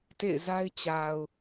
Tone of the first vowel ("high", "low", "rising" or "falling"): falling